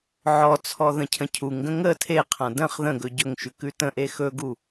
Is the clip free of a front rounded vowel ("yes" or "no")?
yes